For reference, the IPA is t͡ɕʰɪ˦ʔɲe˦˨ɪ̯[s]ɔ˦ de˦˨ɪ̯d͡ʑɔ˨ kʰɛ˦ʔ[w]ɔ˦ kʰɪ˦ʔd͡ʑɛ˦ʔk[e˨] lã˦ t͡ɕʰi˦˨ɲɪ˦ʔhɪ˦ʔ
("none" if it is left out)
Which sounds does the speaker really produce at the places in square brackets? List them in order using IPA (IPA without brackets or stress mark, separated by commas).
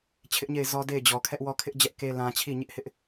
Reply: z, w, e˦